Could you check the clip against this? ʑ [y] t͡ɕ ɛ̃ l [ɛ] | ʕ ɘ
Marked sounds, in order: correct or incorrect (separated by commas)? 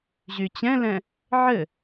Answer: correct, incorrect